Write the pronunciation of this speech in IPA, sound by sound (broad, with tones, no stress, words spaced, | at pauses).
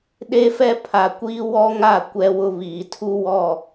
ɗe˦fɛ˦ pʰa˨kʷiː˦ wɔ˦ŋa˦˨ kʷɛ˦wʊ˦βiː˨ tʰu˦wɔ˦˨